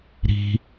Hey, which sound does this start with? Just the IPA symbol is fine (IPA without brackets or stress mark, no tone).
ɾ